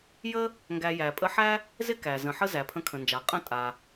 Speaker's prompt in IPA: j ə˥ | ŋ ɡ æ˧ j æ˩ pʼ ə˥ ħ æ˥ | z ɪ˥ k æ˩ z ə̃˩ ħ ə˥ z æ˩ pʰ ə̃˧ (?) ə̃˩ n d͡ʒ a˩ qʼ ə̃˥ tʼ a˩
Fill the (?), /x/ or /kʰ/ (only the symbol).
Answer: kʰ